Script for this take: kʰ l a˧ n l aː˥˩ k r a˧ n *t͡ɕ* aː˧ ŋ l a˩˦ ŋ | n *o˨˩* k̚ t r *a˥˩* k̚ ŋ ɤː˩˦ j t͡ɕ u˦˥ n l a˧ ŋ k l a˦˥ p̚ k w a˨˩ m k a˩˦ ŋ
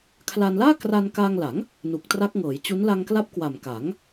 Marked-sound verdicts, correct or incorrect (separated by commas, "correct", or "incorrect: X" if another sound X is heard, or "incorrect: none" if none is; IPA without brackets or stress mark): incorrect: k, incorrect: u˨˩, incorrect: a˦˥